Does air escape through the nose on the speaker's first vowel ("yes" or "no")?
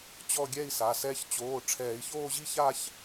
no